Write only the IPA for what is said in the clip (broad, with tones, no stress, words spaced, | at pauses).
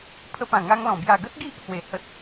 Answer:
pʰə˧pã˨˩ŋa˧ŋlɔ̃˨˩ bja˨˩ɡə˦t̚ ɡi˦ʔ hwe˨˩ hə˦t̚